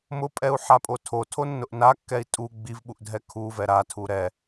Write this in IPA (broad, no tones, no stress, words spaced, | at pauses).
mʊpʼɛu̯ħapʼo tʰotʰonːʊʔ nakːɛi̯ tʼu ɡ͡bivɓuʔdʱɛ kʰuvɛ ɾatʰu ɾɛ